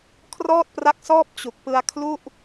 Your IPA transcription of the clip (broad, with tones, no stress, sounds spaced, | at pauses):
kʰ r ɔː˥˩ t̚ p r a˦˥ k̚ s ɔː˥˩ p̚ t͡ɕ u˨˩ k̚ p ɯ˧ a̯ kʰ l u˥˩ ʔ